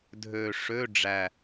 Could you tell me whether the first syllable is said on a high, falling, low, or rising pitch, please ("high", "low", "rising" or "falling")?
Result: low